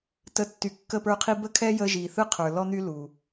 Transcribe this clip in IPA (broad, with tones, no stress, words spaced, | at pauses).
tə˧˩ tːy˩ kːə˧˩pə˞˧˩qʰi˧ bə˧kʰɛ˧ jə˧ ʒi˩θɯ˧qʰə˞˩ lɔ˧n̪y˧ lu˩